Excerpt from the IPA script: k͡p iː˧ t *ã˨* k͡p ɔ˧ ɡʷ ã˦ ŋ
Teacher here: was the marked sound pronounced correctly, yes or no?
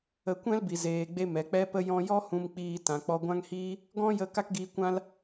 yes